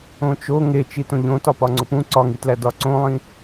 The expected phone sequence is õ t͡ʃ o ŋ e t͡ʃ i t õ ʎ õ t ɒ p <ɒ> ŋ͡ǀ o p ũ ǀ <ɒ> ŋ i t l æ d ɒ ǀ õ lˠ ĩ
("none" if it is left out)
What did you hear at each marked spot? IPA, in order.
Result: ɒ, ɒ

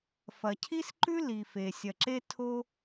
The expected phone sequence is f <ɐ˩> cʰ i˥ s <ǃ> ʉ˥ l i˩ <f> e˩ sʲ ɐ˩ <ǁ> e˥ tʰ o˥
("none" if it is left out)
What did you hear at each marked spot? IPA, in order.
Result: ɐ˩, ǃ, f, ǁ

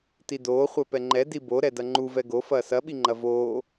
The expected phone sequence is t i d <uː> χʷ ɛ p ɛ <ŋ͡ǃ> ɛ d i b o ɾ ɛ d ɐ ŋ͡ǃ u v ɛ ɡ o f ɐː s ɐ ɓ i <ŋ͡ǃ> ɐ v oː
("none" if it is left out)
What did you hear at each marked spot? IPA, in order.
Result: oː, ŋ͡ǃ, ŋ͡ǃ

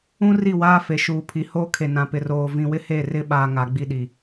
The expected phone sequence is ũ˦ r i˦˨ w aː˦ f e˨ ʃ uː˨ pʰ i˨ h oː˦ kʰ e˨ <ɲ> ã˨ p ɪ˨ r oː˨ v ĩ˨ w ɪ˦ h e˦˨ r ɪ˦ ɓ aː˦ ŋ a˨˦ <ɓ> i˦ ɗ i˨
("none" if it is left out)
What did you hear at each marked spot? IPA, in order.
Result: n, ɡ͡b

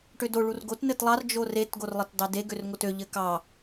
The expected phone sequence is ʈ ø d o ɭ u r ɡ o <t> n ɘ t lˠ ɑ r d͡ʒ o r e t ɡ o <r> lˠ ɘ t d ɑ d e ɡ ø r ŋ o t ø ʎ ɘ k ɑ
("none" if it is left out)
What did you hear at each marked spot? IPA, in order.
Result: t, r

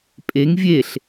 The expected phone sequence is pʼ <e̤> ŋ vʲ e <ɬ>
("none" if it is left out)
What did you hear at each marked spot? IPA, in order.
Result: e, ɬ

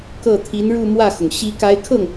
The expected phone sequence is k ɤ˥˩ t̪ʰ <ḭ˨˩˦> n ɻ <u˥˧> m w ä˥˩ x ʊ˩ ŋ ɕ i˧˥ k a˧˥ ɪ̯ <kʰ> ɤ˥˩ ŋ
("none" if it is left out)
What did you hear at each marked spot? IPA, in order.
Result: i˧˥, u˥˧, kʰ

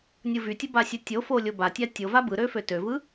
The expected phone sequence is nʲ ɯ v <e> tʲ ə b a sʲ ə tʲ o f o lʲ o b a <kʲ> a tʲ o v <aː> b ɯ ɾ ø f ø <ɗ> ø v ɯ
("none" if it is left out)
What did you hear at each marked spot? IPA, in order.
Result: y, tʲ, a, t

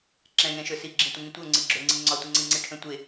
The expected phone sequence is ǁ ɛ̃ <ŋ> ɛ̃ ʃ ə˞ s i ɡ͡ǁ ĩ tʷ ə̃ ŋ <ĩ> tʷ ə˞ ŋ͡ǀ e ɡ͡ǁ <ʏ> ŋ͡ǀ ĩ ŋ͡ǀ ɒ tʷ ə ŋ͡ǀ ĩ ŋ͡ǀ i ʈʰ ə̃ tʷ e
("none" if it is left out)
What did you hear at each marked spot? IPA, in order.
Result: ŋ, ĩ, ʏ

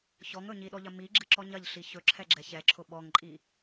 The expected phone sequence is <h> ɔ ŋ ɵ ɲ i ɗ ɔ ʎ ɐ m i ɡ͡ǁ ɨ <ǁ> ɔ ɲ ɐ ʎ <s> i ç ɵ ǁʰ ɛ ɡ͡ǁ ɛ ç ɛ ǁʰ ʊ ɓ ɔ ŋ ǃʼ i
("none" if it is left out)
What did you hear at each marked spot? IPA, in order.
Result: ç, ǁ, ɬ

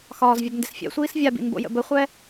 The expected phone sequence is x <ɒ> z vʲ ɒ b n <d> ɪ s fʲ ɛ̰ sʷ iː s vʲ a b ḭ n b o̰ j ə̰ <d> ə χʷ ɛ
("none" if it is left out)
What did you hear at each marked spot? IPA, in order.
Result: ɒː, d, b

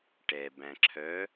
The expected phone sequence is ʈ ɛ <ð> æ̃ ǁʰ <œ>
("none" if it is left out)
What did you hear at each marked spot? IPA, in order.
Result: b, œ

